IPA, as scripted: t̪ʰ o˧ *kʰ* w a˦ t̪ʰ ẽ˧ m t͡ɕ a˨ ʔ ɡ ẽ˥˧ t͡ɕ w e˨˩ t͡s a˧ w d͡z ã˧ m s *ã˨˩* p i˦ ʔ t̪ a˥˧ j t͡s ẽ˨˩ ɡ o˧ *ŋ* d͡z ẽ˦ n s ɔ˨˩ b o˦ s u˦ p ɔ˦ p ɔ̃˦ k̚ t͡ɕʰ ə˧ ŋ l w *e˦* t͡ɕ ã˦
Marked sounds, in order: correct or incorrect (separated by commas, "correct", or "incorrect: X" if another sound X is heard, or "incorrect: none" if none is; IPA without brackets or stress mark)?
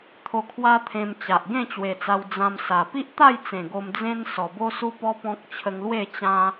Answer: correct, incorrect: a˨˩, incorrect: m, incorrect: e˥˧